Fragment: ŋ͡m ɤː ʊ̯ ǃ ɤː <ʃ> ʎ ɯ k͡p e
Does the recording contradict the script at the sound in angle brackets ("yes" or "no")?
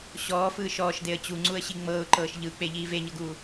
no